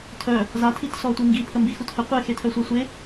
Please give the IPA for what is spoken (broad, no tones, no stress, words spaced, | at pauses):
tʰœ | zatʰitsɔ tʷiŋɡipʰə mbixuthə qʷexetʰœsʷa sʷe